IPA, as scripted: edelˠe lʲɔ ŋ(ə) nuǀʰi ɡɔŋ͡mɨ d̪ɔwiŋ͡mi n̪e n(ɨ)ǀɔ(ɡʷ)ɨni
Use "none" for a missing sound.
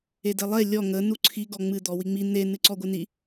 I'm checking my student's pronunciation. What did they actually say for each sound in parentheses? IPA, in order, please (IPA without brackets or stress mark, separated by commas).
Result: ə, ɨ, ɡʷ